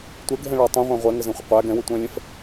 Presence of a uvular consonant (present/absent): present